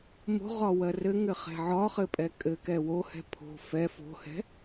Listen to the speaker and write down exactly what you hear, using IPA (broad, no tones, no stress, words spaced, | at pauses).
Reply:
mo̤ʁɒ wɜrɘŋɘ χɛ̤ʕɒχɘ pʼɛkʼɘkɛ wohɛ̤ pʰo̤ fɛ fo̤hɛ̤